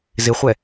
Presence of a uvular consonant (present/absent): present